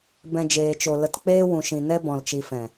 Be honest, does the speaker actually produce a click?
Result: no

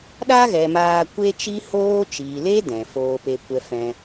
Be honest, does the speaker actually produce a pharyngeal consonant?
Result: no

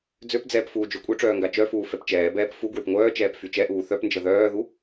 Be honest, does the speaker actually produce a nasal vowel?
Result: no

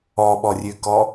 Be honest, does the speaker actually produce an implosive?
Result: yes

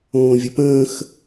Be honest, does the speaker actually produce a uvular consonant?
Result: no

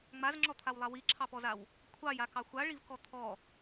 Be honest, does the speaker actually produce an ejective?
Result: no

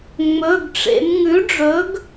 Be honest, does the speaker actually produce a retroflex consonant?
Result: yes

